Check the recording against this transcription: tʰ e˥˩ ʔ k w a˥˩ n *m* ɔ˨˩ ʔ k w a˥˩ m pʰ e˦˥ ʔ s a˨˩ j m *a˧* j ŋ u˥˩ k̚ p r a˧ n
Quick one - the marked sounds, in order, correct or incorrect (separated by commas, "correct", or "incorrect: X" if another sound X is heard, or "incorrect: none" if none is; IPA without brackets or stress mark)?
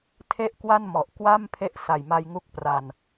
correct, correct